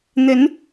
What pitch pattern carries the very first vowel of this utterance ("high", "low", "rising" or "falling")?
rising